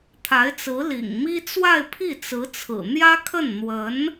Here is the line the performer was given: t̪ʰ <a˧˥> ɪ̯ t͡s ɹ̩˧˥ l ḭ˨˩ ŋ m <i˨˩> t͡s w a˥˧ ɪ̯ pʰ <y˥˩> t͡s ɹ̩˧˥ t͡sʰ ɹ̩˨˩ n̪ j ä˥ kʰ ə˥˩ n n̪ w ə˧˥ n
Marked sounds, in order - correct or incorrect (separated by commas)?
correct, incorrect, incorrect